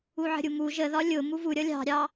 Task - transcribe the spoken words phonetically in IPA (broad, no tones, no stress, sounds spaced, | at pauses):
u ʕ ə̤ ɾʲ u m u ʒ ə ð ɒ lʲ ʊ m u v u ɾʲ ʌ lʲ ɑ̤ ɾʲ ɑ